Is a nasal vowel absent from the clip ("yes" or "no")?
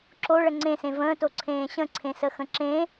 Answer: no